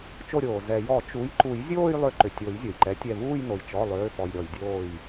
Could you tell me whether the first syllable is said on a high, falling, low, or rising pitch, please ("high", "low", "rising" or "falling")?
falling